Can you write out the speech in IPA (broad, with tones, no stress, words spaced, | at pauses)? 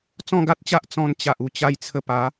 t͡sɔ̃˥˧ɡa˦t̚t͡ɕa˦ʔ t͡sɔ̃˧nt͡ɕa˨ʔu˨˩ t͡ɕa˧jt͡sʰə˧pa˨˦